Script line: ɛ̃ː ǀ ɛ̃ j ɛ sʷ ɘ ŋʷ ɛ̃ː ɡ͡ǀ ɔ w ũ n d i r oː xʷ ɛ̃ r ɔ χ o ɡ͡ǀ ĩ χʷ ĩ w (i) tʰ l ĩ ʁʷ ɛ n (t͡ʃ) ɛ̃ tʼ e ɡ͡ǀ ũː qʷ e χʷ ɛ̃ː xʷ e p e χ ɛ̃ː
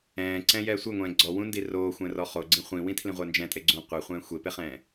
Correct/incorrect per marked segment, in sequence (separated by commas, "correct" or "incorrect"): incorrect, incorrect